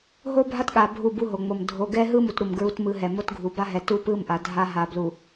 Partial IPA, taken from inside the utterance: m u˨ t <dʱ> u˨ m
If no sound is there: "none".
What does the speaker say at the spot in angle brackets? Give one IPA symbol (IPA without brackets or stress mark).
ɾ